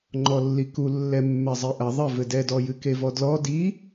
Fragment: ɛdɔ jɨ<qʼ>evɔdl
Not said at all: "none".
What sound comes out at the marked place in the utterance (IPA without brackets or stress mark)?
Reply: k